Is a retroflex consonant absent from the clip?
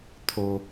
yes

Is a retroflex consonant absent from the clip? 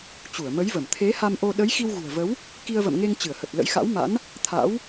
yes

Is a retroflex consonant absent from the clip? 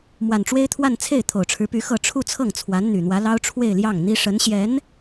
no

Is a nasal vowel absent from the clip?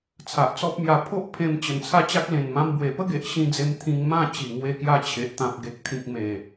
no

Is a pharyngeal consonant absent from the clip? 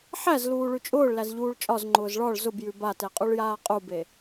no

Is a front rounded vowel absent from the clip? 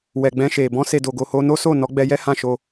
yes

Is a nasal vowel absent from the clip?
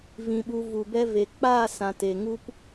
no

